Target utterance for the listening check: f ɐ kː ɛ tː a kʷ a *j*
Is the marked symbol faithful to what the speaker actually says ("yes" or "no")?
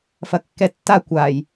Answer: yes